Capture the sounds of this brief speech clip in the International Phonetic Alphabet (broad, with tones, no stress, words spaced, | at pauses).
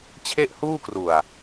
t͡ɕʰe˥˩ʔhuː˥˩kru˨˩a̯